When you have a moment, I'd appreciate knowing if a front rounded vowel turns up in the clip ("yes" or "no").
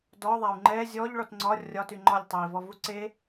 yes